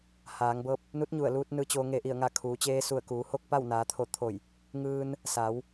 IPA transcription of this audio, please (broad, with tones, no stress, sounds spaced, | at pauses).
h aː˩˧ ŋ b ɤː˧ p̚ | n u˧˥ t̚ ɲ u˧˩ ə̯ l uː˧ t̚ n ɯː˧ t͡ɕ oː˧ ŋ e˧˩ ʔ i˧˩ ə̯ ŋ a˧˩ kʰ uː˩˧ t͡ɕ eː˧ s u˧˩ ə̯ k uː˩˧ h oː˥˨ k̚ p a˥˨ w n aː˩˧ t̪ʰ o˧˩ t̪ʰ o˧˩ j | ŋ ɯː˧ n | s aː˩˧ w